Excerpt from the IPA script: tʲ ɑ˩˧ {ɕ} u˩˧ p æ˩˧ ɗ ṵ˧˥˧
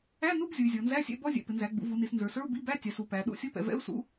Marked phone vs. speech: incorrect: s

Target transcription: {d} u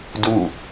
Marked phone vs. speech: correct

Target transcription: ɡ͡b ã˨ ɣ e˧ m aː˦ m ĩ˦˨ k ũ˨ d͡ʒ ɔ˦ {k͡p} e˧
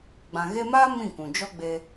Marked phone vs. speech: incorrect: ɡ͡b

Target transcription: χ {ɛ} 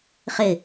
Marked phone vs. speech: incorrect: ɪ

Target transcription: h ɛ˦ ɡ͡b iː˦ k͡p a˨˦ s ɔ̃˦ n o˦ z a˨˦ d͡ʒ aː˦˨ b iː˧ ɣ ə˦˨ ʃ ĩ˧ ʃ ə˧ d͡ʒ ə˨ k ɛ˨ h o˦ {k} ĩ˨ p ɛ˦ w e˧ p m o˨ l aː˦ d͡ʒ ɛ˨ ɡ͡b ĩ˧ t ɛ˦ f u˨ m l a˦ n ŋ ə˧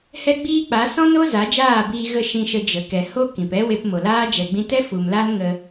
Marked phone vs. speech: correct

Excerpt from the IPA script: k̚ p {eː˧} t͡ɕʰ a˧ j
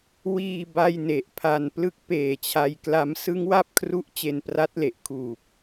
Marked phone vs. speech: incorrect: eː˨˩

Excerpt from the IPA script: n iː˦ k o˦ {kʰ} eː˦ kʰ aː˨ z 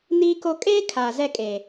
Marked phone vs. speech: incorrect: kʼ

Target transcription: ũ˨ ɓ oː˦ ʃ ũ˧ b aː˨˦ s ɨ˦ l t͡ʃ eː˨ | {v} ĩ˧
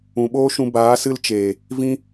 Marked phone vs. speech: correct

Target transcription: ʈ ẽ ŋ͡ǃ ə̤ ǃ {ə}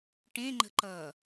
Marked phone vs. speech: incorrect: ʌ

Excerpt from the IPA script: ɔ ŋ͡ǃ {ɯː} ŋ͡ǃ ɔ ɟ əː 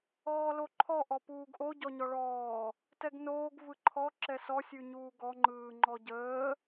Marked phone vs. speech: correct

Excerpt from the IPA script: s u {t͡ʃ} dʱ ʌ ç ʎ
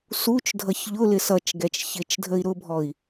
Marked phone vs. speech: correct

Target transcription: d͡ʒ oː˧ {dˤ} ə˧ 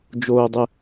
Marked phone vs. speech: correct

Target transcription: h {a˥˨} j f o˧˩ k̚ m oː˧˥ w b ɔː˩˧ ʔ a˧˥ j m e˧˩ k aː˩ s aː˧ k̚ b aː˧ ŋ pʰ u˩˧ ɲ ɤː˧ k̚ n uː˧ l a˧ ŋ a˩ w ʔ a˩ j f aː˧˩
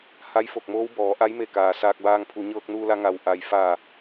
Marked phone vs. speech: incorrect: a˧˥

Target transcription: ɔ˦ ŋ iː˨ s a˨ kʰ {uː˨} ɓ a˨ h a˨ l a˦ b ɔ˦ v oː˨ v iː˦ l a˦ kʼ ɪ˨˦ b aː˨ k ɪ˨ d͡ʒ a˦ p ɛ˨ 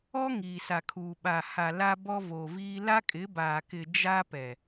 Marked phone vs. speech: correct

